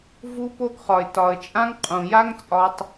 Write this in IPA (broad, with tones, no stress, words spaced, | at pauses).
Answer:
vu˧po˧ɡχɒ˨ɪ̯ tɒ˨ə̯t͡ʃʼã˧ŋ qʼũ˨ja˦ŋt͡sʼɒ˧tˤ